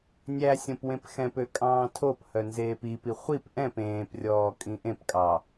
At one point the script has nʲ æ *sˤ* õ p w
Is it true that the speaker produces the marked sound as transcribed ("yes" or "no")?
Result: no